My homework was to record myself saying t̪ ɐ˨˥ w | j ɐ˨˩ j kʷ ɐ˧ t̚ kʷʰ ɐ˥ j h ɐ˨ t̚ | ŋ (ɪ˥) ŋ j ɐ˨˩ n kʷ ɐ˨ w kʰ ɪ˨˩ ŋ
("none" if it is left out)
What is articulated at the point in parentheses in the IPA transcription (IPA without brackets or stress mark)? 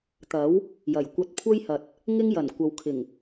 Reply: ɪ˥